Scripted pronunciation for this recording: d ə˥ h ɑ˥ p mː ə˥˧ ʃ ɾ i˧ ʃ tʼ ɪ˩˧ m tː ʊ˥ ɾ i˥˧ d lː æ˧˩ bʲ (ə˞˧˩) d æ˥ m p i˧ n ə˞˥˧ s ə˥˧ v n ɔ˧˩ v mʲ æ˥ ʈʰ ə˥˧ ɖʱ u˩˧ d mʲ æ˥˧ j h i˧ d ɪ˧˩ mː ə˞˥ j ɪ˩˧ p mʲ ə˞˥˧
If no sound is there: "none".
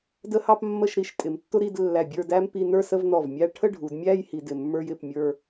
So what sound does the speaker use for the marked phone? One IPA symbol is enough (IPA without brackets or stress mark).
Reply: ə˞˥˧